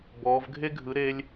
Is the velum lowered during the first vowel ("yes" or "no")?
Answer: no